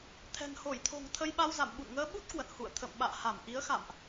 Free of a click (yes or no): yes